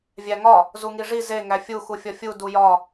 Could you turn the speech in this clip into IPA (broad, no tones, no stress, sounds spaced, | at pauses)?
vʲ æ ŋ ɒ | z u ŋ i ʐ i z e ŋ æ fʲ u x u fʲ ɒ fʲ u d u j ɒ